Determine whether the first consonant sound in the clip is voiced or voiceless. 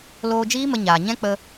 voiced